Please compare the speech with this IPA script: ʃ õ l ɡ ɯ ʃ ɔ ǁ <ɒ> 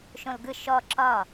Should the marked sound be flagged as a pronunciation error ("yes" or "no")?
no